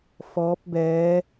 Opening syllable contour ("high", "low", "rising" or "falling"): rising